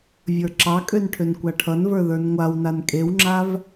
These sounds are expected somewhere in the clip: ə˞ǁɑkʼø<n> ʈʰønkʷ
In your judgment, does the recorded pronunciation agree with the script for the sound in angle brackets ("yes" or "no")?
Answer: yes